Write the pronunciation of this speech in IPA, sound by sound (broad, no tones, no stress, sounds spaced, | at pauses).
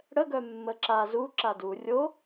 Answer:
ɽ ə ɡ œ mː ə ǁ a z u ǁ a d u rʲ o